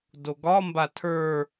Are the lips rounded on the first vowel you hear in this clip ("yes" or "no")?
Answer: yes